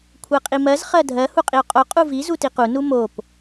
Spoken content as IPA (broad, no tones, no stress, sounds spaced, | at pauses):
kʷʰ ɜ qʼ i m ɜ z χ ɜ dʱ ɜ h u qʼ i o̯ qʼ o qʼ u v i z u t i q u n u m o p